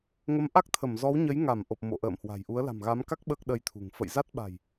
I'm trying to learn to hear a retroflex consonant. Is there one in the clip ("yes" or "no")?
no